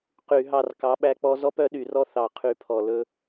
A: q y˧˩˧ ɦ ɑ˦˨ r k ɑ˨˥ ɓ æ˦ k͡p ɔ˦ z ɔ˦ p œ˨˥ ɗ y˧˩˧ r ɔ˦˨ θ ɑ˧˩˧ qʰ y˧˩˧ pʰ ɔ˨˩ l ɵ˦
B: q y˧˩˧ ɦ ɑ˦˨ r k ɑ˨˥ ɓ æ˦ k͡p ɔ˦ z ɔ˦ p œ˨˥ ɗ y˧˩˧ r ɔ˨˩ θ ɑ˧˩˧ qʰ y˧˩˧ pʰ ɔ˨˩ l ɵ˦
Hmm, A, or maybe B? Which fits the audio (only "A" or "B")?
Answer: A